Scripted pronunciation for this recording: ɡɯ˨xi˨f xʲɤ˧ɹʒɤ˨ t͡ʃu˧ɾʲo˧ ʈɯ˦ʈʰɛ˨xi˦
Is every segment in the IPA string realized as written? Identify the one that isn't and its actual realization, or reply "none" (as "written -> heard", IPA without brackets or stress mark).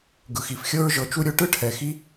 none